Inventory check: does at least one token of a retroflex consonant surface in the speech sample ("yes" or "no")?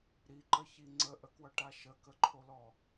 yes